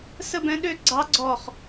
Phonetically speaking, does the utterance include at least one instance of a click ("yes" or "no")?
yes